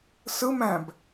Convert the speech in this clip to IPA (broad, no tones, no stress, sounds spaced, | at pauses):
s ɯ m æ̃ b